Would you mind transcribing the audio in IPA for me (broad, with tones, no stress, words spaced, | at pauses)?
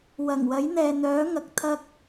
wɐ˨˩ŋwɐ˨˥j n̪ɛː˨n̪œː˨˥ ŋɐ˨k̚t̪ʰɐ˥k̚